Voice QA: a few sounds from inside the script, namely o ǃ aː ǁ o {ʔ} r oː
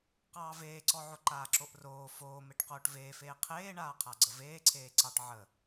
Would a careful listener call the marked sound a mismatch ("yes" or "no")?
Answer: no